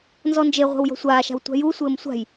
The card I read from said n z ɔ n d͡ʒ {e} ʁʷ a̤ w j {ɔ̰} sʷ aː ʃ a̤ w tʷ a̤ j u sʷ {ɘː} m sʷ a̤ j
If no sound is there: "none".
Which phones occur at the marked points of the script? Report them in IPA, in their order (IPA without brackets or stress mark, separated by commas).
e, ɔ̤, ɘː